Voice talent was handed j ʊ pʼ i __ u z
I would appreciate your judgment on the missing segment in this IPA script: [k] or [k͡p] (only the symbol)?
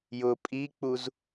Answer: k͡p